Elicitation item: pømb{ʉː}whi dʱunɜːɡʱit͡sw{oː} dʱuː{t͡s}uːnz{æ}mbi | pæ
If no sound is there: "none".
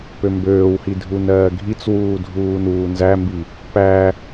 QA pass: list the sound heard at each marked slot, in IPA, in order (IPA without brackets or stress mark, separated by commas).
øː, uː, n, æ